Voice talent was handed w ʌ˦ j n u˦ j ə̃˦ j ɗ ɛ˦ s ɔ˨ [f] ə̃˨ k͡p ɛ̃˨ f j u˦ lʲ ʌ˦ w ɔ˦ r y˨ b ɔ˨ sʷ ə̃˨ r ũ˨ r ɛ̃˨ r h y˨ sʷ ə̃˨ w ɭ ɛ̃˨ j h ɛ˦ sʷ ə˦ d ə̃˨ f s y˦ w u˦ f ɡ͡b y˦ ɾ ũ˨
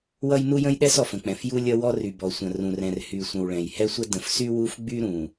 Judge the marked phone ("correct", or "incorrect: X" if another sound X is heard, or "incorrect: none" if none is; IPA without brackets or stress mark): correct